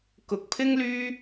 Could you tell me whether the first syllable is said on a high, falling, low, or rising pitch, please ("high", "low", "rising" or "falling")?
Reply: rising